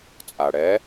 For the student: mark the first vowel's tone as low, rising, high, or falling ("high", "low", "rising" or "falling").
low